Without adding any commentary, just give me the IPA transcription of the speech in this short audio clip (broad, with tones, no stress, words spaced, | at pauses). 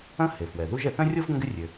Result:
ɐ̃˥ he˩fwɛ˩ðu˥ʒ ɛ˩θœ̃˥rʲo˥v ɡɐ̃˥ɡɪ˥rʲø˩